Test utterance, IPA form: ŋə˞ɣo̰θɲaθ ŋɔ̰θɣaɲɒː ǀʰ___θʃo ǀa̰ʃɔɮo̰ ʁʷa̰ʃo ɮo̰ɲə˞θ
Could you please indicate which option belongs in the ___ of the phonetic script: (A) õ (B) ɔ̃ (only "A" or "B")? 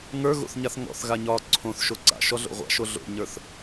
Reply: A